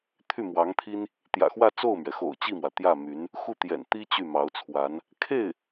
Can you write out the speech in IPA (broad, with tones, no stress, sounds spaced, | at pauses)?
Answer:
t̪ʰ y˥˩ m w ɑ˧˥ ŋ t̪ʰ i˥ n | t̪ j ä̰˨˩ x w ä˥˧ t͡s o˥˩ ʊ̯ m ɥ ɛ˩ x o̰˨˩ ʊ̯ t͡ɕ i˥˩ m w ä˩ t̪ j ä˥˩ m y˧˥ n | x u˥˩ t̪ j ɛ̰˨˩ n t̪ i˥ t͡ɕ y˥˩ m ɑ˧˥ ʊ̯ t͡sʰ w a˧˥ n | kʰ e˥˩ ɪ̯